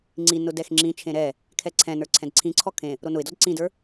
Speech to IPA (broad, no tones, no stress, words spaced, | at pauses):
ŋ͡ǀi nʊdɛxŋ͡ǁĩt͡ʃʰẽ ɾɛ | kʰɛǀʰɛ̃nə˞ ǀʰɛ̃dǀʰĩǀʰɔ kʰẽ | ɾonʊɪ̯dɔd ǀĩdə˞